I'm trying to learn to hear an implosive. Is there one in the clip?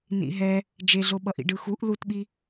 yes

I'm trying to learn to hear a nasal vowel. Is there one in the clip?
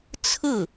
no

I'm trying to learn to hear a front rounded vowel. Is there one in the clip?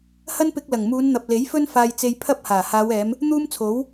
no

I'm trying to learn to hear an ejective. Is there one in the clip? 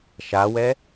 no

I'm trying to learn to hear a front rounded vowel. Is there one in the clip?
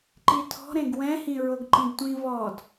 no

